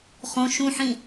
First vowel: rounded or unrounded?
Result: rounded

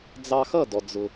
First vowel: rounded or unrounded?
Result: unrounded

